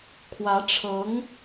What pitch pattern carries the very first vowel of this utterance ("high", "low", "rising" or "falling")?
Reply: rising